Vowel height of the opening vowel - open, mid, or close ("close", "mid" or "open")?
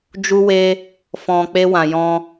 close